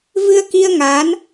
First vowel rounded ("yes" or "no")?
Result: no